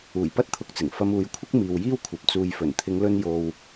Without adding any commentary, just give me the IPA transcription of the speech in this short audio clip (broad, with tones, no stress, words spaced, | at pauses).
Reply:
uː˨˩jpɐ˥t̚t̪ʰʊ˧k̚t͡sɪ˨˩ŋ fɐ˧muː˨˧jkʷʰɪ˥k̚ miː˨wjiː˥wkʷʰɐ˨p̚ t͡suː˨jfɵ˨˩nt̪ʰɪ˨˧ŋlɵ˧n jo˨w